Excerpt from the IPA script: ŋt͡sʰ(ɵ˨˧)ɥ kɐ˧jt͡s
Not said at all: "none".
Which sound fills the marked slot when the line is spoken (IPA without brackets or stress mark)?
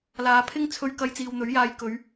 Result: ɵ˧